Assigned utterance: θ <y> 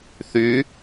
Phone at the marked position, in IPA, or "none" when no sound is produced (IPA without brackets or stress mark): y